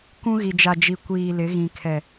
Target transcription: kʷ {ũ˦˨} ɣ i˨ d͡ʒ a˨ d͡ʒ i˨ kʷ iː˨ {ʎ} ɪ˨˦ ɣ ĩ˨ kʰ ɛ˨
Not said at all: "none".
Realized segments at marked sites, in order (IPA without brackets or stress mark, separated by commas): ũ˦, l